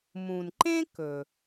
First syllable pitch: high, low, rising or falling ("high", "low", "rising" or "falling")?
low